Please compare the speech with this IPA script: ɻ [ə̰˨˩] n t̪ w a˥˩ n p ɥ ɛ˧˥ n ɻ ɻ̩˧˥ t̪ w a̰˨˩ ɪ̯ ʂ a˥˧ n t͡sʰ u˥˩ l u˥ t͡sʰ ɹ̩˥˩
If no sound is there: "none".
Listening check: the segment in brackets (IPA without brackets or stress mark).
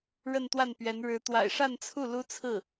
ə˥˧